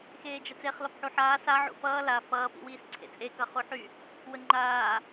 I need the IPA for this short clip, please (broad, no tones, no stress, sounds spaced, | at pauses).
x eː d͡ʒ ə t͡s e χ l ɒ p ħ u ħ aː s a ʕ ṵ f ʌː l a f ʌː p ḭ w iː s ǀʰ ḛ t͡sʼ e k ʌ χ u ħ y | w ə ŋ͡ǃ aː